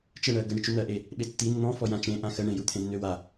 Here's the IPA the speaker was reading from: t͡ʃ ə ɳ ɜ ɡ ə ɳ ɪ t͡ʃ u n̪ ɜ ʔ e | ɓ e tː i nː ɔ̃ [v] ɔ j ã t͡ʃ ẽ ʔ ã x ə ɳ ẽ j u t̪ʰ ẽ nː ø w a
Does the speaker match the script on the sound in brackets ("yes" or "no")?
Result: no